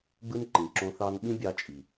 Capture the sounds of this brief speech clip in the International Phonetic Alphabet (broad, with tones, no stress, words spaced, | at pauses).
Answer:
ɡ͡bɯ˦nǃĩ˨ǁõ˧ θɑ˦n ɓĩ˦bʲɑ˧ t͡ʃʼi˨